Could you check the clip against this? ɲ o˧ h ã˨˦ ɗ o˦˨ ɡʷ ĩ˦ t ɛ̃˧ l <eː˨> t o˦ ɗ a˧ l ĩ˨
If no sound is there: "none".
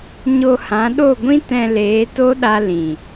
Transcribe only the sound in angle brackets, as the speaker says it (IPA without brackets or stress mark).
eː˨˦